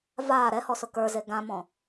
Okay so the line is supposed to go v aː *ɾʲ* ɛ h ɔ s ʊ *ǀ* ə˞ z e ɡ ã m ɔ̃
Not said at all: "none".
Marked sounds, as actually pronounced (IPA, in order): ɾ, k

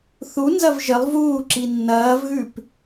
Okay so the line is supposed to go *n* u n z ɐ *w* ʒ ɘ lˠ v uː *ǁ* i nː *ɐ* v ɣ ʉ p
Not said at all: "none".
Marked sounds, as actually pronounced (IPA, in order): θ, v, ǁ, ɐː

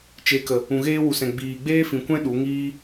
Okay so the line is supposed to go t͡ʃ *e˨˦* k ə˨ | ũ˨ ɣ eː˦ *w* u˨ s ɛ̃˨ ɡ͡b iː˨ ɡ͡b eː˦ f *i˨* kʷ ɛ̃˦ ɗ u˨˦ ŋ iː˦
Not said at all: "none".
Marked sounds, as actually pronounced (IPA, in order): e˨˦, w, ĩ˨

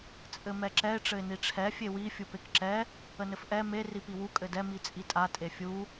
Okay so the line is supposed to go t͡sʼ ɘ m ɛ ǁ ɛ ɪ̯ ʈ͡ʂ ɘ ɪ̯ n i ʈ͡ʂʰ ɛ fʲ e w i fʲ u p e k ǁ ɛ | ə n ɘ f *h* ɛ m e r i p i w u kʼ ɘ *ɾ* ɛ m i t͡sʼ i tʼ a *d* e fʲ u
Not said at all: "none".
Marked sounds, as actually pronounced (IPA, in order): ʔ, d, tʼ

